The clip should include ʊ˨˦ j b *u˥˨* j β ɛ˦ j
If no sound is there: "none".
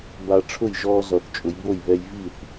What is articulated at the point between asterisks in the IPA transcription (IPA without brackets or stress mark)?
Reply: o˥˨